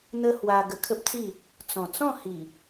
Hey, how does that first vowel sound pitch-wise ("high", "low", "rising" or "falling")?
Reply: high